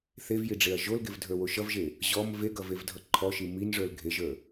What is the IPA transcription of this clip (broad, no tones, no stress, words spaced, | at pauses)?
θevjiɖ͡ʐeɐ̯ ʒolɡevdʱə˞wo ʃʌvʒe | ʑɔm veɡʌvevdʱʌ ǃʰɔʃi minʐə˞l ɡʱeʒə˞